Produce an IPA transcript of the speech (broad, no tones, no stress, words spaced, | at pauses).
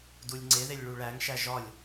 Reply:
dulʲŋ͡ǀeðelʲ ɭuɭæŋʃæ ʒɒlʲ